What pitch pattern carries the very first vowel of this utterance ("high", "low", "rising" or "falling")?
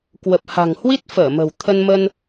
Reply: low